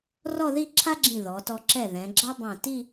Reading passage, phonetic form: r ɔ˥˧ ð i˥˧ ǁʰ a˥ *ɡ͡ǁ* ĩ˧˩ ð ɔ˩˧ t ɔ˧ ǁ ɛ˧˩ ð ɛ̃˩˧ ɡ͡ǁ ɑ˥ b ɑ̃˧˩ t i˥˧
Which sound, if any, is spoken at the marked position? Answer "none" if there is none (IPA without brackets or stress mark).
ɡ͡ǁ